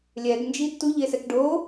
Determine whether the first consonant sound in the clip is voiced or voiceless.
voiced